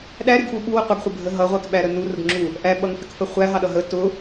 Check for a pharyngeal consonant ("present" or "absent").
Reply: absent